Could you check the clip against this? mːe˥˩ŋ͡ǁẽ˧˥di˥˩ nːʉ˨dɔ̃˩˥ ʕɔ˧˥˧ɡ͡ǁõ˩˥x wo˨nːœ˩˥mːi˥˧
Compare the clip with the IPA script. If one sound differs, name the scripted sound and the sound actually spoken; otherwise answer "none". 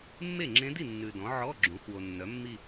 none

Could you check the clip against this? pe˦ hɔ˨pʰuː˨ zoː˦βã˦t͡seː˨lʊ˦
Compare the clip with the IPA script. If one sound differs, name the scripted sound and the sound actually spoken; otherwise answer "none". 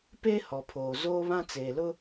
uː˨ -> oː˨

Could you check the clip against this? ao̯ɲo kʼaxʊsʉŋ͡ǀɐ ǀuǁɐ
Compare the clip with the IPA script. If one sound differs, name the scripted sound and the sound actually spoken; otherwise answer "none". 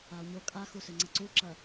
ʊ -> u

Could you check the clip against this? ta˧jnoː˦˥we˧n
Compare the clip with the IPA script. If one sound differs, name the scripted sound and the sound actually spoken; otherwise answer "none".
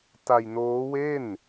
e˧ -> e˥˩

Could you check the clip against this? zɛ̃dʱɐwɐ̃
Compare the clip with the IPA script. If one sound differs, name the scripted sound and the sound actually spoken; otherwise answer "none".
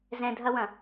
none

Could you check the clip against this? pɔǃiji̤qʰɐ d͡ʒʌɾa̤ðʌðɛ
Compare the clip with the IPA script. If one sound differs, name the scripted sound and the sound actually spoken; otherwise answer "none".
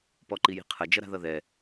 none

